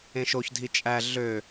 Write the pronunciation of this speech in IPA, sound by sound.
ẽ ʃ o ç dʱ i t͡ʃʼ æ ɮ ø

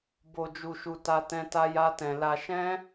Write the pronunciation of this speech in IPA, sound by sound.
b o˧ d͡ʒ u˧ ʃ u˧ t a˦ t ɛ̃˦ t a˦ j a˦ t ɛ̃˧ l a˧ ʃ ɛ̃˦

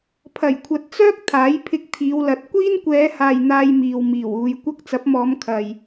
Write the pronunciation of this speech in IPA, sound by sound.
pʰ ɐ˨˩ j kʷʰ ɐ˨ t̚ t͡s œː˥ k̚ t̪ʰ aː˨˥ j pʰ ɪ˧ k̚ t̪ʰ iː˨˧ w l ɐ˨˥ t̚ kʷ iː˥ n kʷ ɛː˨˧ h aː˨ j n̪ aː˧ j m iː˨ w m iː˨˩ w uː˨˧ j kʷ ɐ˥ k̚ t͡s ɐ˨˥ p̚ m ɔː˨˧ m kʰ ɐ˨ j

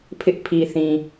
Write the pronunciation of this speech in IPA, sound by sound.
pʰ ɪ˦ ʔ pʰ i˨ θ ĩ˨

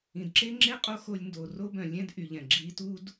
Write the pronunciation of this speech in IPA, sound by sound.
ĩ˩ d ǁ e˥ ŋ͡ǁ e˥ qʼ o˥ x o˧ lʲ n d o˩ r o˥ b œ̃˩ lʲ ɛ̃˥ d ʔ y˩ ʎ ɛ̃˩ ɡ͡ǁ i˧ t u˥ d

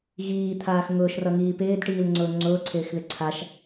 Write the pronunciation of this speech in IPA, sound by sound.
ɣ iː t̪ʰ aː x ŋ ʊː ʃ r ʌ ŋ iː p ɪː d ʈ iː l ŋ͡ǀ ʊː ŋ͡ǀ ʊː ǀʰ ɪː x ð ɪ ǀʰ a ʃ

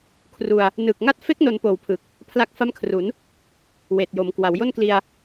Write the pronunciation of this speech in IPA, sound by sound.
kʰ r u˧ a̯ | n ɯː˨˩ k̚ ŋ a˥˩ t̚ f e˦˥ k̚ n o˧ n p oː˨˩ w pʰ ɯ˨˩ k̚ | pʰ l a˦˥ k̚ f a˥˩ m kʰ r u˩˦ n | w eː˨˩ t̚ j o˩˦ m k w a˩˦ w j o˥˩ n k l i˧ a̯

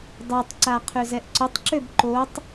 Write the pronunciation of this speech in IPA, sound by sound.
dˤ ø tˤ ǀ a qʰ ø z ɛ ʔ ǀ ʊ tˤ ǁ ø b ǃ o tˤ

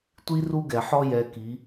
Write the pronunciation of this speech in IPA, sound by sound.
tʷ i˦ r u˦ ɡ ɛ˨ ħ ɔ˦ j ɛ˧ k i˨˦

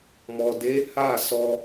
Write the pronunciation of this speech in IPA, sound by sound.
m ɔ˨ d e˨˦ h a˦˨ s ɔ˧

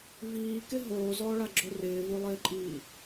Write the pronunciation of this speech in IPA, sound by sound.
v iː k ɪ ɦ oː z ɔː ɭ a ɡ͡ǁ o r ɪː v o lˠ ɪː ǃʼ iː

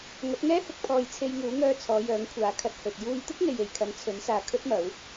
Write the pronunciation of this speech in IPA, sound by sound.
ŋ ɐ˨˥ t̚ ŋ ɛː˥ h ʊ˧ k̚ pʰ ɔː˧ j t͡sʰ e˧ j ŋ uː˨˥ ŋ œː˧ t͡sʰ ɔː˨˧ j œː˨˥ ŋ kʷʰ aː˨˧ kʰ ɐ˧ t̚ h ɵ˨ t̚ j uː˧ j t̪ ɪ˥ k̚ ŋ e˨ j e˨ j kʰ ɐ˨˧ n t͡sʰ ɵ˨˥ n s aː˨ kʰ ɵ˥ t̚ m ɐ˨˥ w

